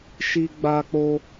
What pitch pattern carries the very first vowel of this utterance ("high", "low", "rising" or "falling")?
high